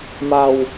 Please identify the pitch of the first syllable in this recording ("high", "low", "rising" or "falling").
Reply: low